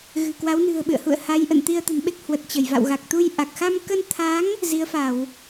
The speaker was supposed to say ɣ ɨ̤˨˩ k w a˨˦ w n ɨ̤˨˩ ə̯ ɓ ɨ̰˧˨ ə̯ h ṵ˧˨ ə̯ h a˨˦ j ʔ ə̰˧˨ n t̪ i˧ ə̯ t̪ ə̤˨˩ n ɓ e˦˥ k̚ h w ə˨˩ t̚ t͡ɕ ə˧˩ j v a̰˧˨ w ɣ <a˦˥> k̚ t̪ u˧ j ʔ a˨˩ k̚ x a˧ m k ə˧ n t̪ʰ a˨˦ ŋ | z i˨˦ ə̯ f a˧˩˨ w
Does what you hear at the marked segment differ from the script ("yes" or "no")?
yes